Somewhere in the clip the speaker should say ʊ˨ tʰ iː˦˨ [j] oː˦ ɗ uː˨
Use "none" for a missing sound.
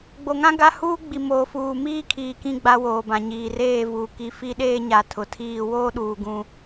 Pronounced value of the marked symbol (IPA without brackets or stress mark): w